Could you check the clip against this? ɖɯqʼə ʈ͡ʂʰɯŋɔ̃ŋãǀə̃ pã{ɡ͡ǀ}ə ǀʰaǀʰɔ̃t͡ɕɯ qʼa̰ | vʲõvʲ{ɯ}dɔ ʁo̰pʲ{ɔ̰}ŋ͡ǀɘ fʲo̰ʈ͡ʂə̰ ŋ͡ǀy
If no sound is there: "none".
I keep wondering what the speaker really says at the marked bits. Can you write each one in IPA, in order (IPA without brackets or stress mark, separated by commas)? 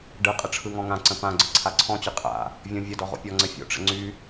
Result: ɡ͡ǀ, ə, ɔ